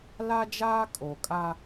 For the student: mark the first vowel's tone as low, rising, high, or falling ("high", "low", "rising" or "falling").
high